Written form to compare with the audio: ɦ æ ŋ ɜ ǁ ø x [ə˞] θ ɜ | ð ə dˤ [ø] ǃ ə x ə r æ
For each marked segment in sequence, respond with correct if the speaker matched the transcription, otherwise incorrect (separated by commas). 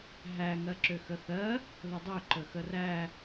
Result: incorrect, correct